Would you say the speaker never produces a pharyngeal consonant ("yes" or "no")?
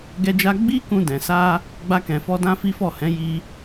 yes